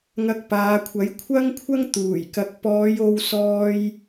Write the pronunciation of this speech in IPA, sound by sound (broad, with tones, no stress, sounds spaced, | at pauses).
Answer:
ŋ ɐ˧ k̚ p aː˨˧ kʷʰ ɐ˨˥ j kʷʰ ɐ˥ ŋ kʷʰ ɐ˥ ŋ t̪ uː˨˩ j k ɐ˨˥ k̚ p ɔː˨˧ j o˧ w s ɔː˧ j